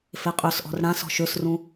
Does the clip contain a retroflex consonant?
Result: yes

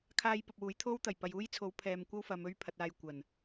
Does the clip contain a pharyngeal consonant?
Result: no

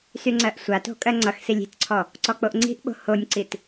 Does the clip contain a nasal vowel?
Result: no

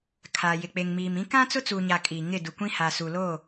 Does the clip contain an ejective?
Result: yes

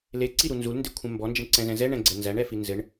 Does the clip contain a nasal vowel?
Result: yes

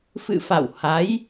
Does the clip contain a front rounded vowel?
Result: no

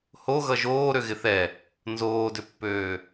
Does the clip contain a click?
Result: no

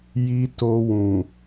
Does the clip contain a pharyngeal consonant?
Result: no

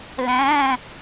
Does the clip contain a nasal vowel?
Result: yes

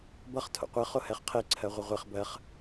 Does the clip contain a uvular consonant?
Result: yes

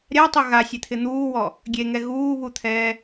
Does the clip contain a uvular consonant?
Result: no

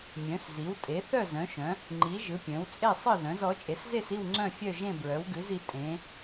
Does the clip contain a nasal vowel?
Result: yes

